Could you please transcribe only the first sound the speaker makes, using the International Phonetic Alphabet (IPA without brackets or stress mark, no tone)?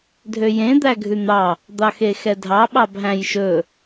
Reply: dʱ